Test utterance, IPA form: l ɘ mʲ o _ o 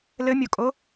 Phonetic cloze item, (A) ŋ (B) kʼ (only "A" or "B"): B